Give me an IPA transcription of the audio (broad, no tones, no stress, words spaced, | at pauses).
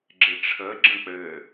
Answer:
ɡ͡ǁɪʈ͡ʂʰə ɡ͡ǁə̃k͡pɘ